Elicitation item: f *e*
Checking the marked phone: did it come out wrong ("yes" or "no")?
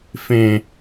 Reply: yes